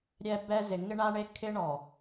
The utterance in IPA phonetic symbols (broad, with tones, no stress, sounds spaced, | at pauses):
ɾʲ ɛ˦ b ɛ˦ z ɪ˨ ŋ ɪ˦ ɳ a˦ ɳ e˦ kʰ ɪ˦ ɳ ɔ˨